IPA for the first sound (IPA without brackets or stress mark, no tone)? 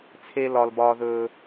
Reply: t͡sʰ